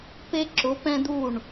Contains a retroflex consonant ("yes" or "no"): yes